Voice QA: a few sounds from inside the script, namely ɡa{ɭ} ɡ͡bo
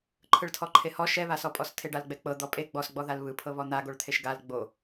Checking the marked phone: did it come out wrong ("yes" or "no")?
yes